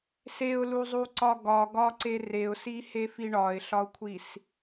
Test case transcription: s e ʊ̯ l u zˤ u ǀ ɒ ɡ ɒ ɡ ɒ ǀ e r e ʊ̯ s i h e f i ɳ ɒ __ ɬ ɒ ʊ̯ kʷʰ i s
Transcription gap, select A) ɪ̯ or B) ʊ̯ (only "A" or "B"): A